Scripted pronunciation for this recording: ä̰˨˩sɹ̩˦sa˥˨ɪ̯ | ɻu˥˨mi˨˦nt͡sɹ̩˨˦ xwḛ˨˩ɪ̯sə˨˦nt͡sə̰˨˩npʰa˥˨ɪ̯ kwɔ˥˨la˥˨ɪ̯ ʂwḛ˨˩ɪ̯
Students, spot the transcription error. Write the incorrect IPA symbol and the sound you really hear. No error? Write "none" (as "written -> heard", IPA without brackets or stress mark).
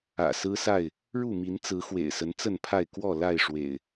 ə̰˨˩ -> ə˥˨